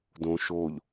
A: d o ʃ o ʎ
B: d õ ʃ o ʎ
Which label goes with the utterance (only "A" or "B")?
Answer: B